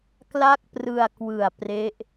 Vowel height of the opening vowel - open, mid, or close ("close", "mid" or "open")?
open